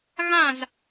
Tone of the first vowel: falling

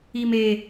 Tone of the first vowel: high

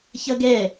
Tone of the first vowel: high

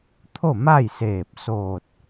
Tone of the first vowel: falling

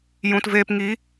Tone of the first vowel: low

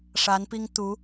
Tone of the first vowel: rising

